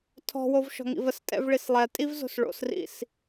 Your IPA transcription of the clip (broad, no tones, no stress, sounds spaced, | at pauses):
tʰ ɔ̤ w o v ʃ ɔ̤ ŋ ḭ v ə s tʼ ɛ̰ v ɭ i s lˠ ɛ tʼ i v z o̤ s ɭ o̰ s r ḭ s